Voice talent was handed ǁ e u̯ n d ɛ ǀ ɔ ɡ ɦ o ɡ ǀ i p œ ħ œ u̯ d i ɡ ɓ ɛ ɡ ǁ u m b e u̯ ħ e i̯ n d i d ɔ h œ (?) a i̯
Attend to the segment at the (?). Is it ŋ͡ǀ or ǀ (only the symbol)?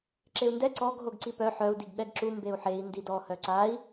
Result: ǀ